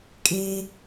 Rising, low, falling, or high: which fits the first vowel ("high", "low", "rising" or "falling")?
high